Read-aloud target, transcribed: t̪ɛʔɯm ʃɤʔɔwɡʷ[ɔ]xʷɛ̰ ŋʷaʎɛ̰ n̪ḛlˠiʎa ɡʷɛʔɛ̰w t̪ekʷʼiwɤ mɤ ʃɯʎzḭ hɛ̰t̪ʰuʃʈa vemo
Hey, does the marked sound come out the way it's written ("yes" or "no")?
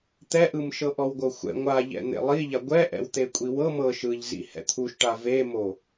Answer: no